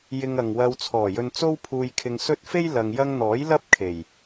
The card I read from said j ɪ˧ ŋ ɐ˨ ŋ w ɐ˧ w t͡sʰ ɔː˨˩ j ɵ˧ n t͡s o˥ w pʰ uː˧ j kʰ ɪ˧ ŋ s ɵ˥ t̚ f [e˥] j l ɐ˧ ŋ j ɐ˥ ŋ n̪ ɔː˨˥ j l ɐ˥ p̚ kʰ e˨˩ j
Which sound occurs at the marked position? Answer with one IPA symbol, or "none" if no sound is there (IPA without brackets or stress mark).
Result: e˥